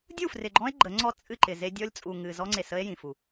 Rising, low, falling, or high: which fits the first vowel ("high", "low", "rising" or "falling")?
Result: falling